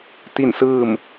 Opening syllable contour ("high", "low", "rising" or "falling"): falling